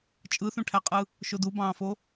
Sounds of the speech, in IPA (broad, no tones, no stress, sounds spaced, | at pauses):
t͡ʃʼ ɯ θ ũ ʈʰ æ qʼ ɯ | ʃ o d u b ɑ̃ː f o